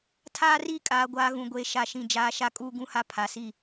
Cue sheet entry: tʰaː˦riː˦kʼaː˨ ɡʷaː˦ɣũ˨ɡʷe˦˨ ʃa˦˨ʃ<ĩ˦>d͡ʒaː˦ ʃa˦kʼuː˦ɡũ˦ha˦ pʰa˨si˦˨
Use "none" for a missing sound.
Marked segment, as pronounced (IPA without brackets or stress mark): ĩ˦˨